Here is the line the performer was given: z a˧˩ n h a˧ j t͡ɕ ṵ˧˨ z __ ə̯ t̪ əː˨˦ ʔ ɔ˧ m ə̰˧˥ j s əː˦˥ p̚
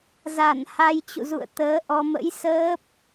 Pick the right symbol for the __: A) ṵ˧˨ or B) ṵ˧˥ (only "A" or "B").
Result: A